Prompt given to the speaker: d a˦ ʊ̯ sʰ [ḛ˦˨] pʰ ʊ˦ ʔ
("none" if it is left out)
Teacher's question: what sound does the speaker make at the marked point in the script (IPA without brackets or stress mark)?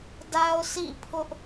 ḭ˦˨